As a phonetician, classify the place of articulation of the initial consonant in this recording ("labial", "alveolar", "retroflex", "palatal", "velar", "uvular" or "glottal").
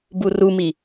labial